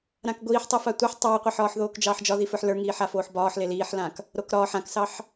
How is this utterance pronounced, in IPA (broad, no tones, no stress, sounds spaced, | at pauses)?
ɾ ã k ɡʷ iː ħ tˤ a f a tʷ e ħ tˤ ɑː qʷ ɛ ħ ɒː ħ ð oː k d͡ʒ ɑː ħ d͡ʒ ɒ ð i f ə˞ ħ l ə˞ ŋ iː ħ a f oː ħ b ɒː ħ l e l iː ħ l ã k | ɾ o k ɾ ɒː ħ ã k s ɑ ħ